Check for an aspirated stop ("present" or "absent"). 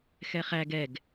absent